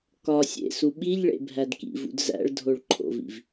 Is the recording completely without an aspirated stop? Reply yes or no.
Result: no